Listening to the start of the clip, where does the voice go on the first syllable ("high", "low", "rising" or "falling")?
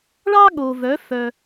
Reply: high